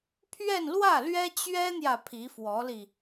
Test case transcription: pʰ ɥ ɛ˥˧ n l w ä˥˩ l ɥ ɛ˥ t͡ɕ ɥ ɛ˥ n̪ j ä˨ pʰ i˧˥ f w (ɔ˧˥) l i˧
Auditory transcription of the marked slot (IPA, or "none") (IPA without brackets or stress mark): ɔ˧˥